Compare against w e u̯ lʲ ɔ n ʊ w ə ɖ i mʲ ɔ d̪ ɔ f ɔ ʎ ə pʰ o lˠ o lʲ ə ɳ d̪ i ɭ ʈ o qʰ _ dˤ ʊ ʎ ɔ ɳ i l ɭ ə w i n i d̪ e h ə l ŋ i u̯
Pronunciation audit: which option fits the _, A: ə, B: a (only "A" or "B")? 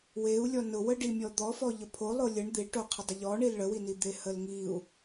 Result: A